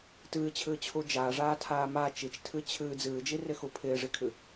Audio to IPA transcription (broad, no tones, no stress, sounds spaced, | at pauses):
t ɨː t͡ɕʰ ɨː t͡ɕʰ u d͡ʒ aː ʐ aː tʰ aː m a t͡ʃ i t͡ʃ tʰ ɨ t͡ɕʰ ɨː d͡z ɨː d͡ʒ i r ɪ x u pʰ ɪː ʐ i kʰ ɨ